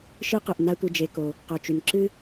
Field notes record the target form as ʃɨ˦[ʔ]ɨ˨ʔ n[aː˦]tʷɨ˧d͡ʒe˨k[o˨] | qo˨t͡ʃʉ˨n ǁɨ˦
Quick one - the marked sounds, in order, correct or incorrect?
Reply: incorrect: q, incorrect: a˦, correct

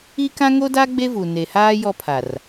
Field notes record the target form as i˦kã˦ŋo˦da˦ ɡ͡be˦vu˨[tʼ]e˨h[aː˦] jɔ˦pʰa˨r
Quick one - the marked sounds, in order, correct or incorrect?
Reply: incorrect: n, correct

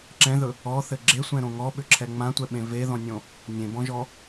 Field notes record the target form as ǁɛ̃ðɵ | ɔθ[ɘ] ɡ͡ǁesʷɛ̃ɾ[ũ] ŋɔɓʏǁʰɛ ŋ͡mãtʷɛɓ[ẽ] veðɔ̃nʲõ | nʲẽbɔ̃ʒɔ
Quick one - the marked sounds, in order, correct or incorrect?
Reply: correct, incorrect: õ, correct

